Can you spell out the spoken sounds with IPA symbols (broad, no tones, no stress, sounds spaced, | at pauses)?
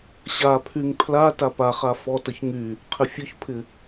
ɕ a pʰ y ŋ pʰ l a t a p a χ a f ɔ t ə ç ŋ y | qʰ ɪ fʲ ɔ ç pʰ ɪ